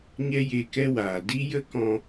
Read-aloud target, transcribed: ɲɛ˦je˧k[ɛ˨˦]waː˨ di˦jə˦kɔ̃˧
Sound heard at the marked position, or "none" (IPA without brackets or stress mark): ɛ˦